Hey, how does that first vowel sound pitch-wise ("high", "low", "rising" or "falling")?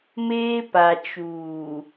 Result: high